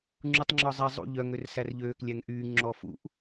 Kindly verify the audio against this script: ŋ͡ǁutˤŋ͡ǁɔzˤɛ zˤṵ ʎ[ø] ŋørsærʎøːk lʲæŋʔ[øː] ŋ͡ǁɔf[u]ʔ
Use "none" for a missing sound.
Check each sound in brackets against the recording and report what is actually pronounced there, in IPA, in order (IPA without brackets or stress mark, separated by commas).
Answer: œ, yː, ṵ